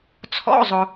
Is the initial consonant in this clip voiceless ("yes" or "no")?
yes